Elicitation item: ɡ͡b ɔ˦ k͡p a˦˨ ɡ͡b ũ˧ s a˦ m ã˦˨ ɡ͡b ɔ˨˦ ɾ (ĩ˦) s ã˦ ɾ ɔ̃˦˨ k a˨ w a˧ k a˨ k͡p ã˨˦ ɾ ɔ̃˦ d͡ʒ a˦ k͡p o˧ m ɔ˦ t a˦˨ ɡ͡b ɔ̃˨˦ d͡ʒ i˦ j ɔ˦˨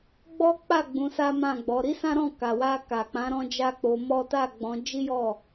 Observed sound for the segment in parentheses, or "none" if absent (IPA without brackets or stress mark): i˦